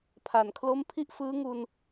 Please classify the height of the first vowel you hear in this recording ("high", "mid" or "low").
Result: low